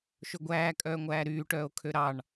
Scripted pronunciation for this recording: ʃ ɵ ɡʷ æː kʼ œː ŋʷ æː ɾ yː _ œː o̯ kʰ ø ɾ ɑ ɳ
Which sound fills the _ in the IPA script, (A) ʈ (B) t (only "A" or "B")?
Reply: A